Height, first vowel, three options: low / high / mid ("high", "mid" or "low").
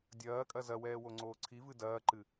low